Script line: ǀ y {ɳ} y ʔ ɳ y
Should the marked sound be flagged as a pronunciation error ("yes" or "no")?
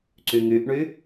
yes